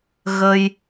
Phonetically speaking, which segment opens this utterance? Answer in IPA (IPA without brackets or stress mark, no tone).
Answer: ɣ